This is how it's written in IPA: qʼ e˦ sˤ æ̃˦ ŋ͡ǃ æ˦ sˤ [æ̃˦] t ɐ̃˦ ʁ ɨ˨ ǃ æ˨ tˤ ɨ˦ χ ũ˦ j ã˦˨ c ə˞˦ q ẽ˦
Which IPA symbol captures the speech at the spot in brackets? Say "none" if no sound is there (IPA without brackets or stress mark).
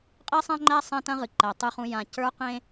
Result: æ̃˦